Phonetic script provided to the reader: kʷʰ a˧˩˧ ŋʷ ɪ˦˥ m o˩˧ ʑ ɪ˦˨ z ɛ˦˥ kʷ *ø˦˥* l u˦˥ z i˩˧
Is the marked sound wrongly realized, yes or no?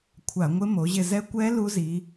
yes